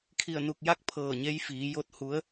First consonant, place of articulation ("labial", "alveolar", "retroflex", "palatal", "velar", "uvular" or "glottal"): velar